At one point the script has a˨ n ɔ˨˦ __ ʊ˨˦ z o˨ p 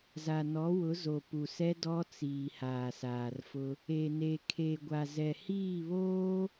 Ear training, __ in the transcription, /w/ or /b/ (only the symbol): w